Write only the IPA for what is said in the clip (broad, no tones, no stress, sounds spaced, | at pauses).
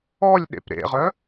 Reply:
ɔ lʲ ɗ ḛ p ɾ ḛ ʁ œ